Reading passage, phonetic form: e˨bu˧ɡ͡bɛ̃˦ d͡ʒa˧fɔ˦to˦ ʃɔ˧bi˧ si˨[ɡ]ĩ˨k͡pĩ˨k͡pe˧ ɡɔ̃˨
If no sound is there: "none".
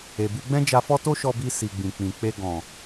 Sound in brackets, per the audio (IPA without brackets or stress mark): ɡ͡b